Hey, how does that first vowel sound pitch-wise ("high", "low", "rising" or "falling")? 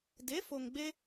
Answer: rising